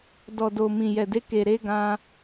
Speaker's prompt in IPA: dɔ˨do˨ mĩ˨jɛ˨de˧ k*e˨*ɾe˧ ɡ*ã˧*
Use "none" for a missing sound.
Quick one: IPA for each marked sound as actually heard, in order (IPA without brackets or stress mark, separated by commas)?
e˨, ã˧